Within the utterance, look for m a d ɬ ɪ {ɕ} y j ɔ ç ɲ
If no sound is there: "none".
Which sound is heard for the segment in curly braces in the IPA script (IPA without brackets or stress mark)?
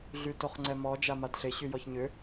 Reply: ɕ